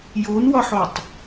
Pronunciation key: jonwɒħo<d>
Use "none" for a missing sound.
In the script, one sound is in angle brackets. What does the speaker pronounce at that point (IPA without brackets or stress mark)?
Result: tˤ